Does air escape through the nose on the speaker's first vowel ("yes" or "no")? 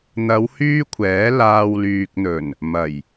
no